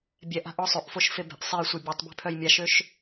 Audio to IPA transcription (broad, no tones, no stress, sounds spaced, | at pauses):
bʲ ɛ ʔ a̤ ʔ ɔ sˤ ø ʔ f o ʃ f e b ɛ̤ ʔ sˤ e j sʷ ɤ bʲ ɛ tˤ b e̤ pʰ œ j mʲ a ʃ ø ʃ